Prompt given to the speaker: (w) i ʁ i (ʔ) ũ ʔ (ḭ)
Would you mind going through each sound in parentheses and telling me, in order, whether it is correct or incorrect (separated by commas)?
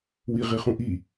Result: correct, incorrect, incorrect